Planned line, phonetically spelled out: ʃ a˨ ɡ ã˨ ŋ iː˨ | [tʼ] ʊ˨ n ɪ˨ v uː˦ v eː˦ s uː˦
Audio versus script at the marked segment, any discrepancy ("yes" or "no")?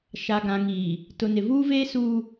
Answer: yes